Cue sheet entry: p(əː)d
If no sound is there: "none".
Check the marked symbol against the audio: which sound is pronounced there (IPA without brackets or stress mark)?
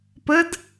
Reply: ə